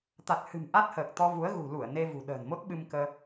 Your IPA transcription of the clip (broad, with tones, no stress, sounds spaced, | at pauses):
t̪ a˨˩ t̚ h ɨ̤˨˩ m ʔ a˦˥ t̚ h əː˨˩ k̚ t̪ ɔ˧ v u˨˦ ə̯ ɣ ṳ˨˩ l u˧˩ ə̯ n e˧ v ṳ˨˩ ɗ ə̤ː˨˩ n m o˦˥ t̚ ɓ ɨ˧ m k əː˧